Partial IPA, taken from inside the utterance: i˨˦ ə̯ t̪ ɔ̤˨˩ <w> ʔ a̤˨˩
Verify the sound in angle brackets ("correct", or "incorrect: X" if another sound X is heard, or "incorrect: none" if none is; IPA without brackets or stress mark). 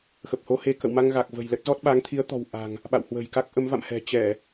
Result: correct